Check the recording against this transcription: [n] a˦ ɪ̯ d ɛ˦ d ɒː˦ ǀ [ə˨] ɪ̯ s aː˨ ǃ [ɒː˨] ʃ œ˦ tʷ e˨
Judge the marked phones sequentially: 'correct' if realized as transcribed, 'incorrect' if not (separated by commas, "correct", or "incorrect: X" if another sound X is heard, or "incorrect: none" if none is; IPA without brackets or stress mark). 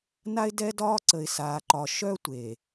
correct, correct, incorrect: ɒ˨